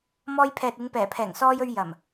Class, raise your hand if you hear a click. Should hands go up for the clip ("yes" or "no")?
no